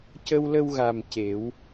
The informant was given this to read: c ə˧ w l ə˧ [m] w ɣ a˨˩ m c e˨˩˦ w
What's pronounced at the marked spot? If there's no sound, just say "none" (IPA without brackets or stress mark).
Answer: none